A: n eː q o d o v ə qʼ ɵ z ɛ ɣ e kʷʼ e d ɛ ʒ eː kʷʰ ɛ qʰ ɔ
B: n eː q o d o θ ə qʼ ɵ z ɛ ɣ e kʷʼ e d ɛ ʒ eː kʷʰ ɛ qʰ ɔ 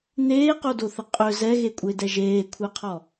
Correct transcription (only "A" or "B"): B